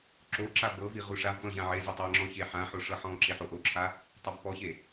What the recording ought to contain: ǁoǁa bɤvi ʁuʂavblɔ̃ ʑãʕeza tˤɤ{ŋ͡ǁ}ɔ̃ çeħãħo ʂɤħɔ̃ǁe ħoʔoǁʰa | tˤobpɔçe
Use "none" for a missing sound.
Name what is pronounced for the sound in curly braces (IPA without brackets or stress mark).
ŋ͡ǁ